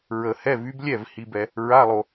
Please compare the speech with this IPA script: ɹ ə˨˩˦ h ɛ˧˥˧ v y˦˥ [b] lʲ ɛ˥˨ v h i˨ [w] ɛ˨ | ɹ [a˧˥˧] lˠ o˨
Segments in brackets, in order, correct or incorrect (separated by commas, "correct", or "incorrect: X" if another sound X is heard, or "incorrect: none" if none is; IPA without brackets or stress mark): correct, incorrect: b, correct